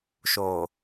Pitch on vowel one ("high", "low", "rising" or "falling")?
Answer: low